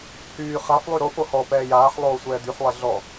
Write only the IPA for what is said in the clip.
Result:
h yː χ a f lˠ y ɾ o f o h ɔ p ɛː j aː ħ lˠ oː sʷ ɛː d̪ y ħ lˠ ɛ ɮ ɔ

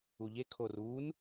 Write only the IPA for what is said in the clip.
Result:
u ʎ e kʰ o r uː n

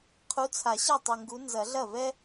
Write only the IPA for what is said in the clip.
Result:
qʰ u˨˦ t͡sʰ a˨˩˦ ɕ ɐ˥˩ tˤ u˨˩ ŋ ɡ u˨˦ n z ɐ˨˩˦ ɮ ɐ˥˩ v ɛ˥

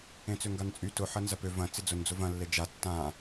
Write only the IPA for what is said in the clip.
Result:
ẽ t͡s ø ŋ ɡ a n t͡sʼ y t ʊ ħ ɐ n z ɐ p ø v ɐ̃ t͡s ɪ d͡z ʊ n d͡z ʊ v ɐ̃ lː e d͡ʒ a tː ã

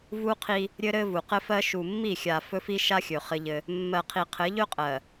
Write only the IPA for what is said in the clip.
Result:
v u˦ qʰ i˦ | ɾʲ ɘ˦ ɾ ɘ˦ v u˨ q ɘ˦ f ɜ˦ ʃ u˨ mː i˦˨ xʲ a˨ f ɵ˦ f i˦ ʃ a˦ xʲ ɵ˨ χ ɘ˦ ʎ ɘ˦ | mː ɜ˨ qʰ i˨ qʰ ɘ˨˦ ʎ ɵ˦ qʼ ɜ˨

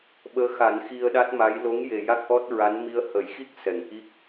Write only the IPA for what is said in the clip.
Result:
ɓ əː˧˥ x a˨˩˦ n x i˧ ə̯ ɗ a˦˥ t̚ m a˧˥ j l o˧˥ ŋ j e˨˩ j a˦˥ k̚ ʔ ɔ˦˥ t̚ ɹ a˧˥ n m i˧ ə̯ h ə˨˩˦ j x i˦˥ k̚ s ɛ˨˩˨ ŋ ʔ i˦˥ k̚

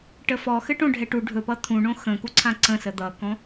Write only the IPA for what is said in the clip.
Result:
ʈ ə f ɔ x ɘ ʈ õ ɖʱ ɛ ʈ u ɖʱ ɵ p ʌ t̪ʰ ũ ɳ õ x ə̃ k u ǀʰ ã ǀ ə̃ s ə d̪ ʌ k ɔ̃

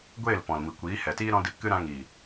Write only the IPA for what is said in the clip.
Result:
ɡʷ eː˦˨ l p ɔ̃˨ l m i˨ kʷ iː˨˦ h ɛ˨ t iː˦ ɾ ɔ̃˦ d i˧ p k ɨ˦ ɾ ã˧ ŋ iː˨

